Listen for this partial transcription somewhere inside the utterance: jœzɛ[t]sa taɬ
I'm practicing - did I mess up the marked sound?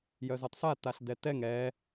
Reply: yes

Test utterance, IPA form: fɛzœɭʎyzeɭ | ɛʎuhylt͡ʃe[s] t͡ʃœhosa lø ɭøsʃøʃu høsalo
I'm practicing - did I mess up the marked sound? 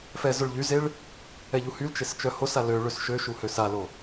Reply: no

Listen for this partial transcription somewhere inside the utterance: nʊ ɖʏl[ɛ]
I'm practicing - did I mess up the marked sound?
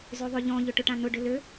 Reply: yes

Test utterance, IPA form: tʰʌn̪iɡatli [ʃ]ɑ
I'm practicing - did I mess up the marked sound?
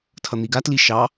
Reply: no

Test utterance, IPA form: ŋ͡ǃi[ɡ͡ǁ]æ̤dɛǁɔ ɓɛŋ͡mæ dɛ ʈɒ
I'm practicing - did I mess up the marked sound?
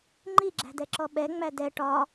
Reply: no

